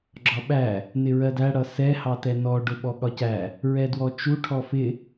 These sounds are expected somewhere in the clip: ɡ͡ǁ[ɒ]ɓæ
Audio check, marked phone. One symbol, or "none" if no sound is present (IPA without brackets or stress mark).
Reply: ɒ